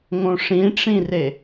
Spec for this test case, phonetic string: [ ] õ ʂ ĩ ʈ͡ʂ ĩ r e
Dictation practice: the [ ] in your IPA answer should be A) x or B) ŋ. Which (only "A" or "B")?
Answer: B